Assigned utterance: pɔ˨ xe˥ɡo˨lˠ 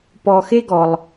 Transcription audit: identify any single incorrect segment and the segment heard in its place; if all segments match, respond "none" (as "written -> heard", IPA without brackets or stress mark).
o˨ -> ɔ˨